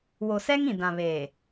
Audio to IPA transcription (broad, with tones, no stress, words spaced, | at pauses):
wo˨sɛ˦ŋ ĩ˨dã˨βeː˨